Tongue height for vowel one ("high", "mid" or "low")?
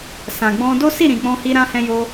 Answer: low